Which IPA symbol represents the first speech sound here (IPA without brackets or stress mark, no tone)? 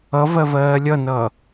ʌ